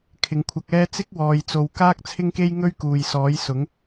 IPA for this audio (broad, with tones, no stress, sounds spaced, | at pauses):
kʰ ɪ˨˩ ŋ kʷʰ ɐ˨ k̚ ɛː˧ t͡s ɪ˥ k̚ w ɔː˨ j t͡s o˨ w k aː˥ k̚ t͡sʰ ɪ˥ ŋ k e˥ j ŋ ɵ˥ ɥ k uː˨ j s ɔː˨˥ j s ʊ˨˥ ŋ